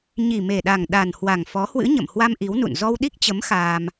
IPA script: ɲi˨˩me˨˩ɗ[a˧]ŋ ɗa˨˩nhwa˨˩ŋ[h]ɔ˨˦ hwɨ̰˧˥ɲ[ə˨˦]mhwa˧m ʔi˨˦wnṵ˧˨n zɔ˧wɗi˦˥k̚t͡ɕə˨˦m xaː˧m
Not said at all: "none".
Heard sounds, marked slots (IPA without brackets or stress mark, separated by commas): a˨˩, f, ə̰˧˨